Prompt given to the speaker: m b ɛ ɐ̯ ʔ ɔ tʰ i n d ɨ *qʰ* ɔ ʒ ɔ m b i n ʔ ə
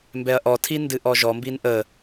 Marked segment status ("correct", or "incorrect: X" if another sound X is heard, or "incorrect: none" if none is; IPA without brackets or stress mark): incorrect: ʔ